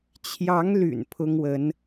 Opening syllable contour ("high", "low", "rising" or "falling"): rising